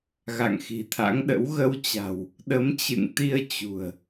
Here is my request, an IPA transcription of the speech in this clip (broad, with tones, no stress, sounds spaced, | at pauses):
ɣ a̰˧˨ ŋ x i̤˨˩ t̪ʰ a̰˧˥ ŋ ɗ ə̰˧˥ w ɣ ə˧ w t͡ɕ a̤˨˩ w | ɗ ə˨˦ m t͡ɕ ɨ̰˧˨ ŋ t̪ i˧ ə̯ t͡ɕ ṳ˨˩ ə̯